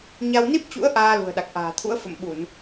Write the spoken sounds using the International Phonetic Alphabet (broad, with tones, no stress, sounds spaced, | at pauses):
ɲ a˧ w n i˦˥ p̚ t͡ɕ ṵ˧˥ ə̯ ʔ aː˧ l ṳ˨˩ ə̯ ɗ a˨˩ k̚ ʔ a̤ː˨˩ t̪ʰ ṵ˧˥ ə̯ f ə̰˧˨ m ɓ u˧˩˨ n